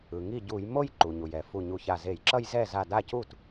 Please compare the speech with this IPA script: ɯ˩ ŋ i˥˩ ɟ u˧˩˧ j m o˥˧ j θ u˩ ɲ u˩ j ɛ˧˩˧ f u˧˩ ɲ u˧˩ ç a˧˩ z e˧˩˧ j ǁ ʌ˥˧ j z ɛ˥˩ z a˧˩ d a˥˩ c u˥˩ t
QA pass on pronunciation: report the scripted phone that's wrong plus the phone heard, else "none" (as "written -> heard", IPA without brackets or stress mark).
θ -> ǃ